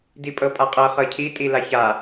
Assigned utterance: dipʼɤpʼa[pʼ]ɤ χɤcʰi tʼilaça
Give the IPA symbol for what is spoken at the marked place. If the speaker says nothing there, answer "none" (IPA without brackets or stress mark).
qʼ